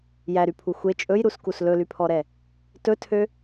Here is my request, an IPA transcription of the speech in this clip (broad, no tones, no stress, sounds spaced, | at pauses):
j æ ɾ y pʰ u xʷ e t͡ʃʼ ɵ j ɾ u s k u s l ɵ l y pʰ ɔ ɾ ɛ | t ɵ tʰ ø